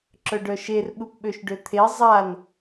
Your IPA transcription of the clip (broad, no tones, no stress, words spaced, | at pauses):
ǁœɖœʃer ɓupɓøʃɖøt̪ʰe zˤan